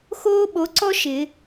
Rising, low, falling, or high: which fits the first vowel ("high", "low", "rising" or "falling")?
high